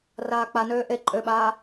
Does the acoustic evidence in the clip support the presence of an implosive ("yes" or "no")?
yes